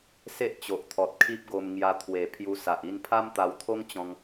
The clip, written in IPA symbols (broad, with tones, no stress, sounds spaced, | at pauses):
s e˦ ʔ t͡ɕ o˨ ʔ t̪ʰ ɔ˨ t̚ kʰ i˦ p̚ ɡ o˧ m ŋ j a˧ t̪ʰ w e˨˩ pʰ j u˧ s a˨ ʔ i˥˧ n pʰ a˦ m t̪ a˧ w t̪ʰ o˦ ŋ t͡ɕ ɔ̃˧ ŋ